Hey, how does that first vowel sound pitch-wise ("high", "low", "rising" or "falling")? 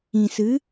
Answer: low